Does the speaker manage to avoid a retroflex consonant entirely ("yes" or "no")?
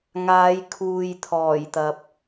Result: yes